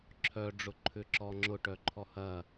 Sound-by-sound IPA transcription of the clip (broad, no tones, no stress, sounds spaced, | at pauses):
ǁʰ œ ɖ͡ʐ ʊ ǃʰ ʏ ǁ ɔ ŋ͡ǁ ʊ ʈ œ ǃʰ ɔ h ɐ